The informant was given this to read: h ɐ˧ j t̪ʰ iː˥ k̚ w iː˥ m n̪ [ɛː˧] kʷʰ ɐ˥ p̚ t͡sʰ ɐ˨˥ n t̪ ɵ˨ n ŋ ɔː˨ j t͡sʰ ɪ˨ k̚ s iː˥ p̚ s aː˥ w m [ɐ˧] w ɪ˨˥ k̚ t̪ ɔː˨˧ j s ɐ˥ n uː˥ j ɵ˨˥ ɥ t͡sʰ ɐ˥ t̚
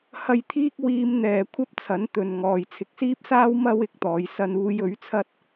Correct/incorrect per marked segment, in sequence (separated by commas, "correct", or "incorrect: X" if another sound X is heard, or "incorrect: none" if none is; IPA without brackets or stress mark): correct, incorrect: ɐ˥